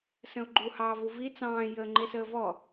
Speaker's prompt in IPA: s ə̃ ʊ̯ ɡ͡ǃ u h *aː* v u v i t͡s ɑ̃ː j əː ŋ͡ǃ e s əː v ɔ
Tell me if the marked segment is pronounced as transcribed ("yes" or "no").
no